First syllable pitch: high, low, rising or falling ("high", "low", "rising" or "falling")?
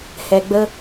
low